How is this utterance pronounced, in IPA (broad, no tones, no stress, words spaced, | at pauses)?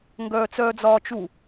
ŋɡœːt͡sœːd͡zɒːt͡ʃu